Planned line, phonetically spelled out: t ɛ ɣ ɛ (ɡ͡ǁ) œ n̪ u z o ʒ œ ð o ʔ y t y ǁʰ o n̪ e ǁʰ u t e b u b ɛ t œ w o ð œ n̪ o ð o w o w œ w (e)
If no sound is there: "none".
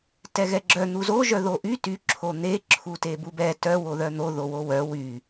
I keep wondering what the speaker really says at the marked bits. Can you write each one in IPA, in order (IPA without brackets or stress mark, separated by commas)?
ɡ͡ǁ, y